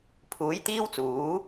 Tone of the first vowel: rising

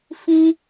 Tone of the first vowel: high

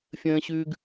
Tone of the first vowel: high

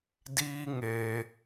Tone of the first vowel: high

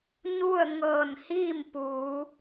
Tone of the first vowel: falling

